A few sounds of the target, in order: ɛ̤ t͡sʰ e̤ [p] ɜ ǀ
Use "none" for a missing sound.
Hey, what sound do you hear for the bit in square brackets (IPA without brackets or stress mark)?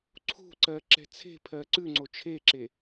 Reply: pʰ